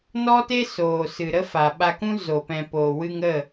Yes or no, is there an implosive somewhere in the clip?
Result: yes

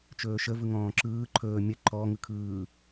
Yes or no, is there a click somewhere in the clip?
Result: yes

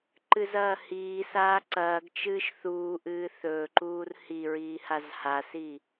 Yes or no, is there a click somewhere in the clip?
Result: yes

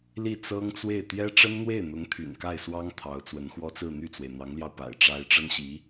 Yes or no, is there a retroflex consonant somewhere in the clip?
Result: yes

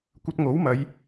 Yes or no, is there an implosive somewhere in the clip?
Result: no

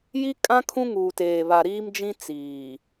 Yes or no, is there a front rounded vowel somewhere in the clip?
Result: no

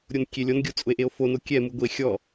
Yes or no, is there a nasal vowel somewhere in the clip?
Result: no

